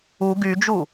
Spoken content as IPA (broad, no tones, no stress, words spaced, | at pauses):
u ɡyd͡ʒu